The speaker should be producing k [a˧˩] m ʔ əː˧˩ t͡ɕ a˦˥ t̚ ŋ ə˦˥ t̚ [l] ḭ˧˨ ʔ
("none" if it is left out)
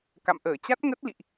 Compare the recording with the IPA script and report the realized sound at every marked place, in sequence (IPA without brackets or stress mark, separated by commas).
a̰˧˨, l